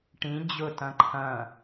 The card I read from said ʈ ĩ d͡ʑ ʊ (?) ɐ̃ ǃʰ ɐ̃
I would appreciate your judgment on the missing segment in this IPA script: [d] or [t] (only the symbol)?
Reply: t